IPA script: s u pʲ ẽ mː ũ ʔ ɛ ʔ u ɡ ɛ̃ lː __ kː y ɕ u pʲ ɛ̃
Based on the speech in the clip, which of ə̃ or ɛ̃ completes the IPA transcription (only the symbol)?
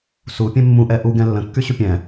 ə̃